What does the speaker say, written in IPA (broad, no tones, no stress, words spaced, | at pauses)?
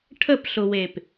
ʈʰəpɬʊwep